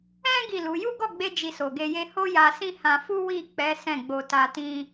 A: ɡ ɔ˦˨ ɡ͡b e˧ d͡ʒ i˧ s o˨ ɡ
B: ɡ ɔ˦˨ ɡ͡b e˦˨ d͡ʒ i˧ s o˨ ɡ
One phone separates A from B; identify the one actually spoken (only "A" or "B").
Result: A